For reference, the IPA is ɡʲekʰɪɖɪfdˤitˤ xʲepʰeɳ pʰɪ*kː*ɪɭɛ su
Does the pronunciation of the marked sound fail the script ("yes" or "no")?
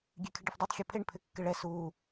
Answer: no